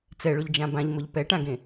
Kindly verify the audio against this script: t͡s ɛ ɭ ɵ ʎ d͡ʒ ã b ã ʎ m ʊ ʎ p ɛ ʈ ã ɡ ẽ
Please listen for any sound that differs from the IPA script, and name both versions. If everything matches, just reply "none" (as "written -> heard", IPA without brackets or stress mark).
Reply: ɵ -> ʊ